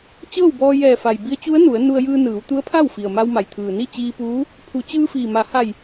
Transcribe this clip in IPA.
t͡ɕ ɤː˥˨ w b ɔː˧ j ɛː˧˩ f a˩ j b i˧˥ ə̯ t͡ɕ u˧˥ ə̯ n u˩˧ ə̯ n u˧ ə̯ j ɯː˧ n ɯː˩˧ w t̪ u˧˥ ə̯ pʰ a˥˨ w f i˩ ə̯ m a˧ w m a˩ j t̪ʰ ɯː˩ n i˥˨ t͡ɕ iː˧ p uː˧˥ | pʰ u˩˧ t͡ɕ ɯː˧ f iː˩ m a˩˧ h a˧˩ j

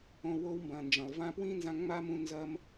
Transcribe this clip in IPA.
õ˧ w o˦ w m b ɐ̃˨ n d͡ʒ ɐ̃˨ lˠ v ã˦ p w ĩ˦ n z ã˧ ŋ͡m a˦ m ũ˧ n z ɐ˧ m

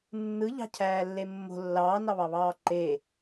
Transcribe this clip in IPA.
nː ɯ ʎ ɑ̤ cʰ æː lː e mː o̤ lː ɑː n ɑ β ɑ β ɑː ǃ e

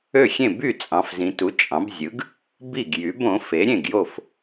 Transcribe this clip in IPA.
ø˥˩ xʲ ẽ˥˩ b y˥˩ t͡sʼ ɑ̃˩˧ f z ĩ˩˧ t u˩˥ t͡ʃʼ ɑ̃˩˥ b zʲ ɯ˩˥ ɡ | b i˥˩ ɡ j y˩˥ b õ˩˥ f e˩˥ ɾʲ ẽ˥˩ ɡ j o˥˩ f

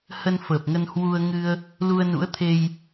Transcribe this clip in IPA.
h ə˧ n f əː˨˩ p̚ ŋ ə˧ n h w u˧ ə̯ ŋ ɨ˧ ə̯ | l u˧ ə̯ n ṵ˧˥ ə̯ t̪ʰ e˧ j

